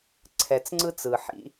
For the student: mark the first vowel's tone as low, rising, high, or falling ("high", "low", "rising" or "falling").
low